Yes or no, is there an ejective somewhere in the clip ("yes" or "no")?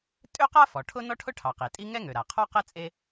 yes